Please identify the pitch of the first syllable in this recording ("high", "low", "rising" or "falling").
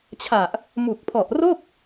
low